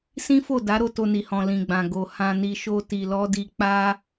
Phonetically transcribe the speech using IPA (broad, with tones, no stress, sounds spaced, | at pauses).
s ĩ˦ f o˦˨ d a˨˦ ɾ o˧ t o˧ n i˨ h ɔ̃˨ l ĩ˨ ɡ͡b ã˨ ɡ o˨ h ã˧ n i˧ ʃ o˦ t i˧ l ɔ˦ d i˦ k͡p a˦